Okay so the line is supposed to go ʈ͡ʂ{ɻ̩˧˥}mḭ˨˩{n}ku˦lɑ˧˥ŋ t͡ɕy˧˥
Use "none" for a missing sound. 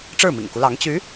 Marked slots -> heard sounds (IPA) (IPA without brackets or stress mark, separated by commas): ɻ̩˥˩, ŋ